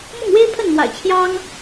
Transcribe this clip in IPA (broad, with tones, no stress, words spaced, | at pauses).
mʊ˥˩ŋwe˥ɪ̯pʰə˥˩nmwa̰˨˩ɪ̯ t͡ɕʰjɑ˥ŋ